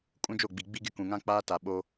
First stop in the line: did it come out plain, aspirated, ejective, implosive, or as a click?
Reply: ejective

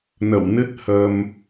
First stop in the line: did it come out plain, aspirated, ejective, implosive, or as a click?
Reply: plain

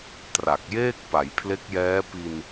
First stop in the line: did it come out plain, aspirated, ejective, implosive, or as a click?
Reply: plain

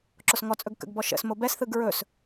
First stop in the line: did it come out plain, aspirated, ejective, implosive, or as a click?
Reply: click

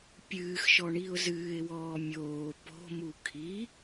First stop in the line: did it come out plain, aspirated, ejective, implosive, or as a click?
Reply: plain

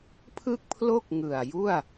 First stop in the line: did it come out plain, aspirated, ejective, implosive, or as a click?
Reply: aspirated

